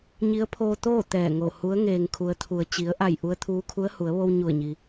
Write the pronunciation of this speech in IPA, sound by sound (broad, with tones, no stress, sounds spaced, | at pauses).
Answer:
ɲ i˧˥ ə̯ pʰ oː˧ t̪ oː˥˨ t̪ ɛː˧˩ ŋ o˧˩ h u˧˥ ə̯ ŋ eː˩ ŋ kʰ u˩˧ ə̯ t̪ʰ u˩ ə̯ t͡ɕ i˩˧ ə̯ ʔ a˧˩ j ʔ u˧ ə̯ t̪ʰ uː˧ kʰ u˧˥ ə̯ h u˩˧ ə̯ ʋ o˧ w ɲ u˧˩ ə̯ ɲ i˩